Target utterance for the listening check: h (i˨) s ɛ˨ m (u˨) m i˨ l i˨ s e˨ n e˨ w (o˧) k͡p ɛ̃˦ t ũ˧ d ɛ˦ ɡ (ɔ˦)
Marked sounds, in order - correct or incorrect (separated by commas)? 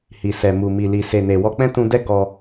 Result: correct, correct, incorrect, incorrect